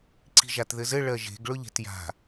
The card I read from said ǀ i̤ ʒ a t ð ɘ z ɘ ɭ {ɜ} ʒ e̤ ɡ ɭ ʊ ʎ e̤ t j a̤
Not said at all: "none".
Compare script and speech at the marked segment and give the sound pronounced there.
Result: ɜ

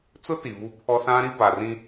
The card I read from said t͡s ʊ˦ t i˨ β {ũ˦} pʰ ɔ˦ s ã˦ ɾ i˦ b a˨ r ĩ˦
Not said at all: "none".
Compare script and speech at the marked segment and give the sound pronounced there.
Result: u˦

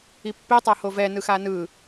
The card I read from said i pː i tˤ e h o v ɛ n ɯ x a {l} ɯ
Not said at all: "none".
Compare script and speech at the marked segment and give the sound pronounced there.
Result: n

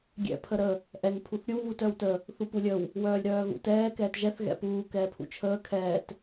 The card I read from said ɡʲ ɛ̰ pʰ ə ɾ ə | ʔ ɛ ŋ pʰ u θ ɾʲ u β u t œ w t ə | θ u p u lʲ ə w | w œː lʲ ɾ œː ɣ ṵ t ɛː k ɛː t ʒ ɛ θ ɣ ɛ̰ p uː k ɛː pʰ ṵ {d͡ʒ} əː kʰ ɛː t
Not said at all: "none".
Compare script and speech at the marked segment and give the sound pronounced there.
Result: t͡ʃʰ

